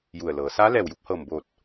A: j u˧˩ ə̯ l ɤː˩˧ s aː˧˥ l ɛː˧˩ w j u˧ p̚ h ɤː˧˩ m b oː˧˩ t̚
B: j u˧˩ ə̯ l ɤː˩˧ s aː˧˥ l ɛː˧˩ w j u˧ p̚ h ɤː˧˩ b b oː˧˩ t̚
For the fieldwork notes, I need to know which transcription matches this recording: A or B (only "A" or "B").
A